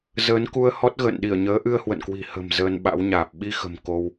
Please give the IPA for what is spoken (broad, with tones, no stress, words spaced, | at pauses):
zəː˨˦nku˧ə̯ hɔ˦˥t̚ɣə̰ː˧˨nɗi˧˩ə̯ɲəː˨˦ ʔɨ˧ə̯hwə̰˧˨nkwi̤˨˩ hə̤˨˩m zəː˧nɓa̰˧˥wɲaː˨˩p̚ ɓi˧xə̤˨˩m ko˧w